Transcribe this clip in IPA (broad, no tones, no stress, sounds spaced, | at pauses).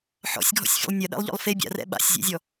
ħ ɔ̰ sʲ ɡʱ ɔ̰ sʲ fʲ o̰ lˠ nʲ ɐ ɗ ɛ̰ lˠ ʎ ɔ̰ lˠ f e bʲ a̰ r ɛ̰ ɓ a̰ sʲ zʲ ɛ̰ zʲ ɔ